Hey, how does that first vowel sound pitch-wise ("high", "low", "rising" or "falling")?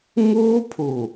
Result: high